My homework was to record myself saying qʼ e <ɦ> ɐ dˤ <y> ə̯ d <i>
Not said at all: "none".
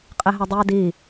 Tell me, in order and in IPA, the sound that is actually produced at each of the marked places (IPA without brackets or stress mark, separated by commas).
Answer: ɦ, y, i